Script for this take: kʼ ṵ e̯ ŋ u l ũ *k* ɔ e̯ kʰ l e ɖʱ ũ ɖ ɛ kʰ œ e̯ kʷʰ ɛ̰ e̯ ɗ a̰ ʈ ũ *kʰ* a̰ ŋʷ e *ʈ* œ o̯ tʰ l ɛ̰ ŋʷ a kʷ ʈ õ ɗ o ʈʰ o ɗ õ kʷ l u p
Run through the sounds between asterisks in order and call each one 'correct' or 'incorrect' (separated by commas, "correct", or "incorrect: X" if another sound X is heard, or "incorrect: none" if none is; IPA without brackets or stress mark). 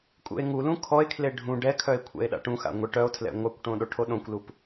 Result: incorrect: kʰ, incorrect: x, correct